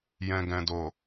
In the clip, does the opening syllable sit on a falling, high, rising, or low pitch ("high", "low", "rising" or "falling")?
low